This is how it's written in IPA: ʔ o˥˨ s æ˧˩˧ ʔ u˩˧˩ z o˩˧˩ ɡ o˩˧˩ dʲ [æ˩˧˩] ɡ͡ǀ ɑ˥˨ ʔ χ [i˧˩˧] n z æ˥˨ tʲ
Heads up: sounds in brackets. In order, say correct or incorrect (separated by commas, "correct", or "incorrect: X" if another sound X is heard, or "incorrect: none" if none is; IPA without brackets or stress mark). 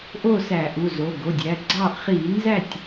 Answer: correct, correct